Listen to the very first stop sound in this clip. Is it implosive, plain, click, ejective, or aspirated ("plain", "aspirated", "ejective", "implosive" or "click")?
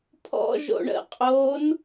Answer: aspirated